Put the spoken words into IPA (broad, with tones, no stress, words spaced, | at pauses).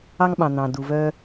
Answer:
ɑ˧ŋɓɑ̃˩ n̪ɑ̃˩ du˩ vœ˧